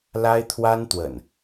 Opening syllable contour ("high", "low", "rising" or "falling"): high